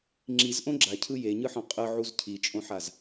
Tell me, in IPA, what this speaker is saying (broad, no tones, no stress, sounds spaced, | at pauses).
ŋ͡ǁ i z ʔ õ ɡ͡ǁ a cʰ ɯ j e ɲ ɯ ħ ɔ̃ qʼ ɯ ʕ u z cʰ i t͡ʃʼ õ ħ a z